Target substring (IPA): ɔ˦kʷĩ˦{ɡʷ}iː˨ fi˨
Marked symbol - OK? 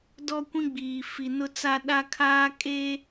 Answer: no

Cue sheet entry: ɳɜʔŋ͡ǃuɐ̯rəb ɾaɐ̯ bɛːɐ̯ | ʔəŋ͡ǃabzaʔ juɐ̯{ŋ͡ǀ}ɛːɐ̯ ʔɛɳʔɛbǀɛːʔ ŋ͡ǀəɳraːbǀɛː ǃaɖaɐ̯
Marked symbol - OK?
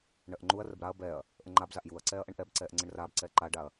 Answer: no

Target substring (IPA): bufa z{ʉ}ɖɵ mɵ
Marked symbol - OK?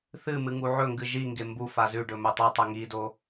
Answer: yes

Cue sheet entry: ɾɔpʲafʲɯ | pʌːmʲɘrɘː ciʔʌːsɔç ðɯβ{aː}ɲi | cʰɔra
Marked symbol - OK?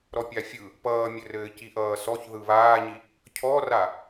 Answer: yes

